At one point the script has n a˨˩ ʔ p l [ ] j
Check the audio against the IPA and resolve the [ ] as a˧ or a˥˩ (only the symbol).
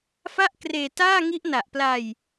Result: a˧